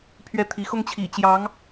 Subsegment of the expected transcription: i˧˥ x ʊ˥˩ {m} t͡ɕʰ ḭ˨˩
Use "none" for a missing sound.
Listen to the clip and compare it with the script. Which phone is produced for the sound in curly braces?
ŋ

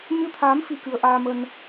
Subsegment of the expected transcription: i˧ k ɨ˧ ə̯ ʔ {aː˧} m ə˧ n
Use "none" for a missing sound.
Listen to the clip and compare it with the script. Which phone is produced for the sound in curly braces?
aː˧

